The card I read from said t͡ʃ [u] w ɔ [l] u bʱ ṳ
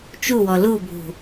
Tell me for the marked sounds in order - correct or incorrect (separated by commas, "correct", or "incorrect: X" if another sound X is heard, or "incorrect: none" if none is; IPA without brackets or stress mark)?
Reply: correct, correct